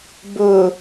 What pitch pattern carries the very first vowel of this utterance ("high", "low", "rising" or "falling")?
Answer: low